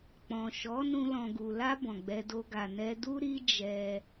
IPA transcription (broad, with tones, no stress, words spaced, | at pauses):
k͡pɔ̃˨ʃɔ˨˦ nũ˧ lɔ̃˨ɡu˨la˧ bɔ̃˨ɡ͡bɛ˧do˧ ɡa˨ nɛ˧du˦ɾi˦ d͡ʒɛ˧